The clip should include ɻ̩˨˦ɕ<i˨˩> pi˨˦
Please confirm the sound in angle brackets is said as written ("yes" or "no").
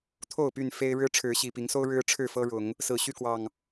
yes